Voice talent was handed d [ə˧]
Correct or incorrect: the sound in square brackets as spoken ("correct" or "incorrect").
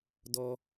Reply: incorrect